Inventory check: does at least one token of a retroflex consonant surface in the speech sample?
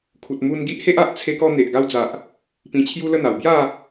no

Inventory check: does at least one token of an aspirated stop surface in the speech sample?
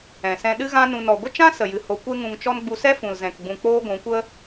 no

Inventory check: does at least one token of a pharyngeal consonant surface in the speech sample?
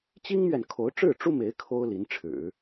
no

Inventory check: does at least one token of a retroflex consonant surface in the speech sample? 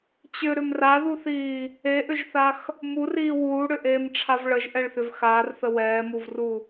yes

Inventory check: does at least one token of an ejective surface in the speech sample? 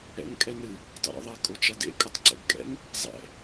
yes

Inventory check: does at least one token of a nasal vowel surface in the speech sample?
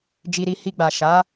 no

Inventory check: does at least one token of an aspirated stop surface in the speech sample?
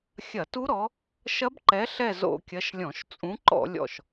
no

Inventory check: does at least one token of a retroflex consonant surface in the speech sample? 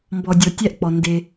no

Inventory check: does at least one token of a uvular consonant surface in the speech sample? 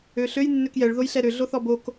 no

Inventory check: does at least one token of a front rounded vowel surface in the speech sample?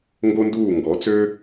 yes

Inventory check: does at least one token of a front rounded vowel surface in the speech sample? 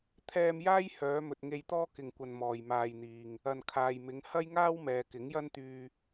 yes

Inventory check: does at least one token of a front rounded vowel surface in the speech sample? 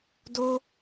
no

